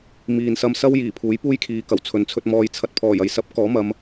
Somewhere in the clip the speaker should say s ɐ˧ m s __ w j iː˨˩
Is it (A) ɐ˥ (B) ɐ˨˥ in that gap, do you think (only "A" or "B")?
A